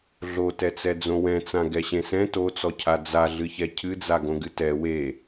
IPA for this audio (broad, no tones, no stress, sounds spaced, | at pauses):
ɮ o t ɛ t͡s ɛ d͡z õ w ɛ̃ t͡s ã ɡ ɛ ɕ ẽ s ɛ̃ t o t͡s ɔ cʰ a d͡z a ɮ ɨ ç ɛ cʰ ɨ d͡z a ɡ õ ɡ ɨ t ɛ w e